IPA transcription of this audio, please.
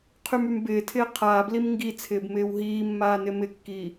qʰ y m y m b ɪː tʰ ɪː qʰ aː b l i m ŋ ɡ i t͡sʰ ɪː b m ɪː w ɦ iː mː aː n ɪ m ɪ kː i

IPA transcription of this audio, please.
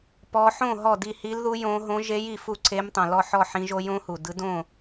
p ɔ˦˥ ħ õ˥˧ ɦ ɔ˥˧ d i˥˧ h i˦˥ l ð u˦˥ j õ˦˥ ɦ õ˦˥ ʒ e˦˥ j i˨ f u˥˧ ǀʰ e˦˥ m tˤ õ˨ l ɔ˥˧ ħ ɔ˥˧ ħ ĩ˦˥ ʒ o˦˥ j õ˦˥ h u˨ d ɯ˦˥ d õ˥˧

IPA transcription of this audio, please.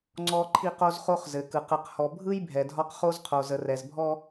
ŋ͡ǀ ɔ˦ ǃʰ i˦ q o˦ z χ o˦ χ z ɘ˨ k ɯ˨ q ɯ˨ q h ɔ˨ bʱ ɯ˦ j bʱ ɛ˨ dʱ ɒ˦ q χ o˦ z qʰ o˨ z ə˨ r ɛ˨ z bʱ ɔ˦

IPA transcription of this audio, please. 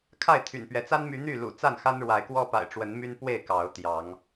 kʰ a˥˨ ɪ̯ t̪ʰ y̰˨˩ n p ɥ ɛ˨˦ t͡s a˦ n m y˨˦ n̪ y˥˨ l ṵ˨˩ t͡s a˥˨ n x a˦ n ɻ w a˨˦ ɪ̯ k w ɔ˦ p a̰˨˩ ɪ̯ ʈ͡ʂ w ə˨˦ n m y˦ n p w e˥˨ ɪ̯ k ɑ˨˦ ʊ̯ t̪ j ɑ˨˦ ŋ

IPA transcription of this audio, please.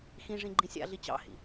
x ĩ ʐ ĩ ɡ͡ǃ ĩ sʲ a̰ ɮ i t͡ɕ ɑ̰ h ḭ

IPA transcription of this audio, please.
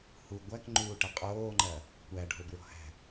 h u ɡʷ æ k ŋ͡ǃ uː ʈ ɐ qʼ oː ŋ͡ǃ ɐ | kʷ æ ɖ ɔ̤ l b ɹ ɔ̤ h æ̤

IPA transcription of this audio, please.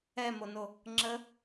ɛ m o n o | ŋ͡ǁ ə

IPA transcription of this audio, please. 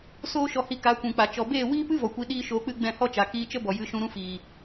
s oː˦ ʃ ɔ˧ h i˧ k a˨˦ kʷ ũ˨ k͡p a˨ t͡ʃ ɔ˨ b eː˦˨ w iː˦ p ɨ˦ v ɔ˨ kʷ i˧ ɗ iː˦ ʃ oː˧ k͡p ɨ˦ ɡ͡b ɛ̃˦˨ h ɔ˦ t͡ʃ a˨ k iː˧ t͡ʃ ə˦ b ɔ˨ j ɨ˨˦ ʃ ũ˧ ɾ ũ˧ f iː˨

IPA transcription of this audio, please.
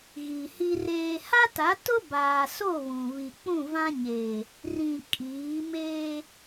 ɣ i˨ h i˦ r eː˦ h a˦ t a˨˦ t ʊ˦ b aː˨ s o˦˨ β ũ˨ β i˨ k͡p ũ˦˨ v ã˦ ɲ eː˨ | r ĩ˨ kʼ iː˨˦ m eː˦

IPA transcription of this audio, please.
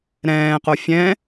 ɾ ɛ̃ː q o fʲ ɛ̃

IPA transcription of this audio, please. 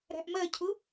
ɾ æ̤ ʔ m ɜ cʰ ʊ

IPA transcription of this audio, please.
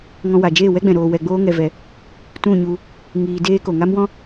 ŋ ɔ̃˧ w a˨ d͡ʒ eː˦˨ w ɛ˦ ɡ͡b ɛ̃˨ ɾ oː˧ w ɛ˧ ɡ͡b oː˦ ŋ ɛ˧ v ɛ˧ | t ũ˦˨ ɲ u˧ | ŋ iː˧ d eː˦ k o˨ ŋ a˦ m w ɔ̃˦

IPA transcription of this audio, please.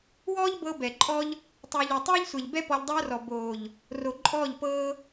w ɔː˦ ʎ b ɤ˧ b ɛ˨ ǃʼ ɔ˦ ʎ | tˤ uː˨ ʎ o˨ tˤ ɛː˦ ʎ sʷ ɛ˨ ʎ b ɛ˦ p ɔ˧ ʎ dˤ oː˦ r ɔ˨ b oː˨ ʎ | r o˨ ǃʼ ɔː˦˨ ʎ p ɤː˦

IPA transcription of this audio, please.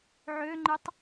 ʕ ø ŋ͡ǃ ɨ tˤ

